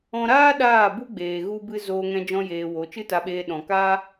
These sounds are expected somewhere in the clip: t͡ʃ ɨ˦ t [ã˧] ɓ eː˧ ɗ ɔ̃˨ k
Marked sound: incorrect: a˧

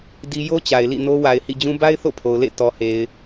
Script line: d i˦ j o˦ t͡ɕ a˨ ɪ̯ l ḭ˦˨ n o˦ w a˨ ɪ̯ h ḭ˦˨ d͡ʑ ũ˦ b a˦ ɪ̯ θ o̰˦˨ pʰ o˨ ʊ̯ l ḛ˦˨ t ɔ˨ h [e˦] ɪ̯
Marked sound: incorrect: e˨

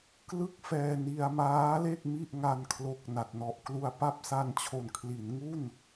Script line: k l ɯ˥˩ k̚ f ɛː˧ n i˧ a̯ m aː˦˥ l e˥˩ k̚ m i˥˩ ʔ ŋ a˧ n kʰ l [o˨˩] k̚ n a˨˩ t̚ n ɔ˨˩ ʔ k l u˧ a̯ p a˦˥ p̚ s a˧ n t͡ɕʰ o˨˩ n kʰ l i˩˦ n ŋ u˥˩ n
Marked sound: correct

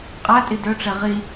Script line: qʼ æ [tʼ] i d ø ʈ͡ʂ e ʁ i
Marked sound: correct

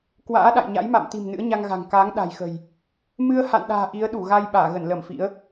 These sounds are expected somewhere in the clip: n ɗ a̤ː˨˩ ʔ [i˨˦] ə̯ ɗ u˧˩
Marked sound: correct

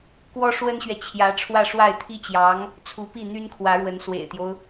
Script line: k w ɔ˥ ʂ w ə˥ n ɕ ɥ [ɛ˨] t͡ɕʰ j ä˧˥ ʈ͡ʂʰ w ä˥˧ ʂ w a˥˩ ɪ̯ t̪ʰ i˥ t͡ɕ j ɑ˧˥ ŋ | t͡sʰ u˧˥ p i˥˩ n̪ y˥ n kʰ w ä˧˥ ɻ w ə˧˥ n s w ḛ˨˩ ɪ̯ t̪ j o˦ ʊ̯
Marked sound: correct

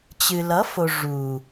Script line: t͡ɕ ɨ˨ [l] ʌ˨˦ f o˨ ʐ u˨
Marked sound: correct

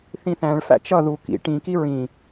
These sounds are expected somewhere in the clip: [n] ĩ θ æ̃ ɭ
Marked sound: incorrect: θ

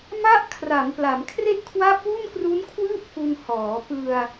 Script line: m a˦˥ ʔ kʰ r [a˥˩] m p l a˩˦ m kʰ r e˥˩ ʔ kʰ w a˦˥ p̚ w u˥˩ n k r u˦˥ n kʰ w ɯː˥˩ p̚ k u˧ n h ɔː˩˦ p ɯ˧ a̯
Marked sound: incorrect: a˩˦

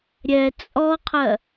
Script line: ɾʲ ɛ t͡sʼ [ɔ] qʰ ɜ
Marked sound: correct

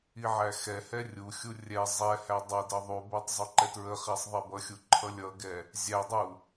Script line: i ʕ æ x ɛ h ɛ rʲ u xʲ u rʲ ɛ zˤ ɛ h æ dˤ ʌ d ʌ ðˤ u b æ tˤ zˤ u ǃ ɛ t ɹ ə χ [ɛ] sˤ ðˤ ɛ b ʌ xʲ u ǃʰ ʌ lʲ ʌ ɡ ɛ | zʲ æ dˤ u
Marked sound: incorrect: æ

